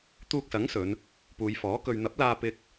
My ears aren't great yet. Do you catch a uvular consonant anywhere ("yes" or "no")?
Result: no